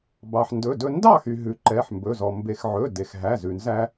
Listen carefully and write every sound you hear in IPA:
b ɑ˩ ħ n d ɵ˩˧˩ d ɵ˧ n d ɑ˥˩ x y˩ ɦ ʉ˩ ǃ ɛ˩˧˩ ħ m b ɵ˩˧˩ z ɔ˩ m b e˩ x ʕ ɵ˩˧˩ d e˩ x ɦ æ˩˧˩ z ʉ˩ n z æ˧

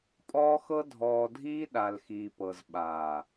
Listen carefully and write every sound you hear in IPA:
pʼ ɔː˦ x ɤ˦ dʱ ɔː˨ dʱ iː˦ ɗ a˨ l x iː˨ p ɤ˨ z ɓ aː˨

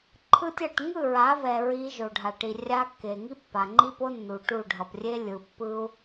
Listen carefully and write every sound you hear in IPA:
ǃʰ ɯ˦ tʲ ʌ˦˨ ʈ ŋ ɯ˦˨ ɹ a˨˦ v ɛ˨ ɹ i˦ ʒ o˨ ɖʱ a˨ ʈ i˨ rʲ a˦ kː e˨ ŋ i˦ pː a˨ ŋ͡ǃ i˦ p o˦ nː u˨ ʈ u˦˨ ɖʱ ʌ˨ p rʲ e˦ lʲ ɯ˨ pː ɯ˦ u̯

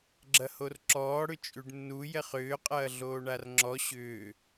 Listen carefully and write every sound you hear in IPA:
ɡ͡ǁ ɐ h o r ǁ ɔː ɽ ʏ t͡ʃʼ ʉ ɖ nː u j ɛ χ ʏː qʼ ɐː ɮ oː ɳ a r ŋ͡ǁ ɔ ɕ ʏː

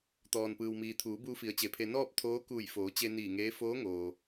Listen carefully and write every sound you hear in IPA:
t̪ ɔː˩ n p ɯː˩ w m iː˩ t̪ʰ uː˩˧ b uː˧ f i˩˧ ə̯ t͡ɕ e˩ pʰ e˧ n ɔː˥˨ p̚ t̪ʰ oː˧˥ k uː˧˩ j f oː˩˧ t͡ɕ e˧ n iː˧˩ ŋ eː˧˥ f oː˧˥ ŋ oː˩

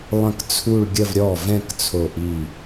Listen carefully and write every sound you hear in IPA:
lˠ ə̃˥˩ k t͡sʰ u˥˧ ɭ ɡʲ ə˥˧ v ɾʲ ɔ˥˩ v ɛ̃˥˧ k t͡sʰ o˧˩ ʔ i˧˩

